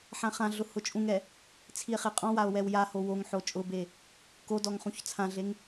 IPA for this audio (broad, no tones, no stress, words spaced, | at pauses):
ħãχãɮʊ hʊt͡ʃʼũŋɛ | t͡sʰie̯χeqʼɔ̃wao̯ wɛwjaho woŋħo t͡ʃʼʊbe | kodɔŋ χũçt͡sʰãɮeŋ